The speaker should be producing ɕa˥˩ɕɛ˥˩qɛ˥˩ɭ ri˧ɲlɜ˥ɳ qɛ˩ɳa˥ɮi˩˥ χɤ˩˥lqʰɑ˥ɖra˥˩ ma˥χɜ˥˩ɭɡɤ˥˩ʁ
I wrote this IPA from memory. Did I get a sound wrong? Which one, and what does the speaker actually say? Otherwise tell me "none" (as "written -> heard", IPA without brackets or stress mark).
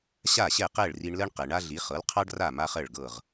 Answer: ɲ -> ɳ